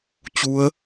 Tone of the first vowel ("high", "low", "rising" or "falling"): rising